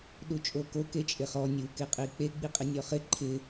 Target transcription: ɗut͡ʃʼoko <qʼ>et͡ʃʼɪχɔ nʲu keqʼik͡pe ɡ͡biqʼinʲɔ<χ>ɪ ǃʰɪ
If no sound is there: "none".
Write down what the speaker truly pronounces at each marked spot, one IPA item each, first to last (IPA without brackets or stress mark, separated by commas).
k, χ